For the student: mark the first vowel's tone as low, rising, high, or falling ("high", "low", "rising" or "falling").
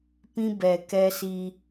high